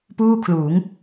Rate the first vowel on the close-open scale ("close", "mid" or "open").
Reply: close